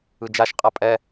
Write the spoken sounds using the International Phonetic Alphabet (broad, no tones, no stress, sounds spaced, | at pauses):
ɯ d͡ʒ a ʃ qʼ a pʼ ɛ